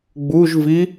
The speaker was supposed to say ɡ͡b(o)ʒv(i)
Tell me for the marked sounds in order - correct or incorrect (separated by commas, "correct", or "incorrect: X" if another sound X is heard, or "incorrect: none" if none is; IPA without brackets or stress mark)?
incorrect: u, correct